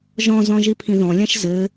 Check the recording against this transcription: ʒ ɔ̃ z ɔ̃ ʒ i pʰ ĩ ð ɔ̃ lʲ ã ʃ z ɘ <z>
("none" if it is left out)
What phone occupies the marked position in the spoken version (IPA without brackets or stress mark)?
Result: none